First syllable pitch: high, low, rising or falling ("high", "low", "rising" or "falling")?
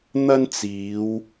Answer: high